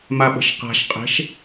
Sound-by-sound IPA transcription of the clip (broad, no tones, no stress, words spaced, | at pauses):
maɓə̤ʃqa̤ʃqʼe̤ʃ